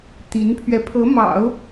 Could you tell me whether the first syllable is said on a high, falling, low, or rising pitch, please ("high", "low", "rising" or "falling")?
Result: rising